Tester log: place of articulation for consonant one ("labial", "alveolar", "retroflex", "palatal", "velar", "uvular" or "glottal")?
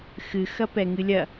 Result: velar